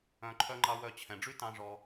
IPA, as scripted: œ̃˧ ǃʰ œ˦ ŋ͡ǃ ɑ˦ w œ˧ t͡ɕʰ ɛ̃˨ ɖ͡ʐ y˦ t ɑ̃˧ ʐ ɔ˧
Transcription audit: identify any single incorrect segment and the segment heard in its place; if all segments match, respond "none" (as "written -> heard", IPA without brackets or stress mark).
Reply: none